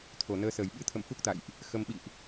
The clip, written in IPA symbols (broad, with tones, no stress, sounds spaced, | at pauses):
t̪ʰ o˨˩ n əː˧ s əː˨˩ j ɓ ɨ˧ t̪ʰ ə̰˧˨ m f u˦˥ k̚ t̪ a̰˧˨ j ʔ | x ə˧ m ɓ ḭ˧˨ ʔ